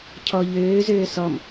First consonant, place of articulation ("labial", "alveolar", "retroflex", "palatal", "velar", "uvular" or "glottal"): palatal